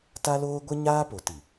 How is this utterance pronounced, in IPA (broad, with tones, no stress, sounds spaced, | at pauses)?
t a˦ l oː˦ ɡʷ ɪ˦ ɲ aː˦ p o˨ t i˨